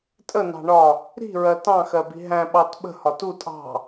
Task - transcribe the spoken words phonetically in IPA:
tʼ ə n ɑ̤ ɳ ɒ | ɾ i̤ ɹ ɜ t ɑ̃ x ɜ b i̤ ɦ æ̃ ɓ ɑ t ɓ ə̤ h ɒ t u tʼ ɑ̤

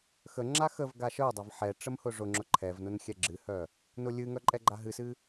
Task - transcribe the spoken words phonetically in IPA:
x ə ŋ͡ǁ a x ə v ɡ a ʃ œ dˤ a v ħ ɛ ʈ͡ʂ ə m h ʊ ʐ ʊ ŋ͡ǁ ʊ ǃʰ ɛ v n ʊ n xʲ ɛ ɡ͡ǁ ɨ h œ | n ʊ lʲ ɨ ŋ œ ǃʼ ɛ ɡ͡ǃ a ɦ ɨ s ɨ

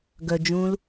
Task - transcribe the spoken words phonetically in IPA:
ɡ œ d͡ʒ ũː l

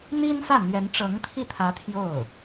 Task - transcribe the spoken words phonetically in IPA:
n̪ i˥ n s ä˥˩ n̪ ɥ ɛ˧˥ n ʈ͡ʂ ɤ˧˥ ŋ t̪ʰ i˥˩ t̪ʰ ä˧˥ t̪ʰ j o˥˩ ʊ̯

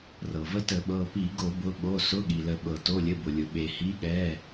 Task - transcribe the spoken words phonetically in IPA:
r ɤ˩ v ə˨˥ t ə˧˩˧ ɓ ɤ˩˧˩ p i˧˩˧ ɡ o˧˩˧ b ʊ˩˧˩ ɓ o˩˧˩ s ʊ˩˧˩ ɠ i˩ l ə˩ ɓ ɤ˩ t o˩˧˩ lʲ ə˩˧˩ b ʊ˩ lʲ ʊ˩ ɓ e˩ h i˨˥ ɠ ɛ˩˧˩

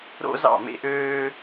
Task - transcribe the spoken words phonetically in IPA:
ɾ o̰˦ z ɑ̰˦˨ m ḛ˦ ʔ øː˦

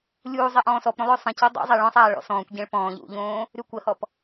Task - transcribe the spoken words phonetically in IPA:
lʲ uː zˤ e ʔ ɔ̃ː s ɔ p ɾ õ lˠ ø sˤ ə̃ c o dˤ ṵ zˤ e ɭ ɔ̃ sˤ aː ɭ ɔ̰ s ɔ̃ː kʷ ɟ ẽ ɭ p ɔ̃ː ʎ ṵ ʎ õː | ɾ y kʷ ə h ɔ p

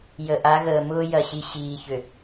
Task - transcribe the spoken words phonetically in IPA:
j ə˨ ʔ a˨˦ ɣ əː˨ m ʊː˦ j ɐ˨ ɕ i˨ ɕ iː˨ ç ʏ˨

